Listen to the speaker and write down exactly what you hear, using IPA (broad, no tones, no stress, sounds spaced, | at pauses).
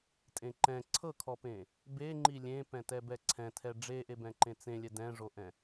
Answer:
tʼ ẽ ǃ ɛ̃ ǀʰ ɤ kʰ ɔ p ẽ | b e ŋ͡ǃ i lʲ ẽ p ɛ̃ t ɛ b ɛ ǀʰ ɛ̃ tʰ ɛ ɖ͡ʐ e ʔ e b ɛ̃ ǃ ẽ t͡s ẽ lʲ ɛ d ɛ̃ ʐ o ʔ ɛ̃